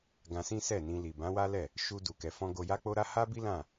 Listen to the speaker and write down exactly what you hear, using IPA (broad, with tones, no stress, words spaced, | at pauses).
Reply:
ɡã˧sĩ˦ sɛ˦˨nĩ˧ li˨bã˨˦wa˦lɛ˦˨ | ʃu˧ du˧kɛ˧fɔ̃˦ ɡo˧ja˦k͡po˦ɾa˦ ha˦bi˦lã˦˨